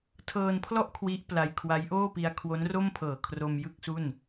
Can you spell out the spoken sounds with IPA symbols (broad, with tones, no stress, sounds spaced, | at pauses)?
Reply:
tʰ ɤː˧ n pʰ l ɔ˥˩ ʔ kʰ w i˦˥ ʔ p l a˧ j kʰ w a˦˥ j ʔ oː˥˩ p i˧ a̯ kʰ w o˦˥ n r o˥˩ m pʰ ɤː˨˩ kʰ r o˧ m j ɯ˥˩ k̚ s u˥˩ n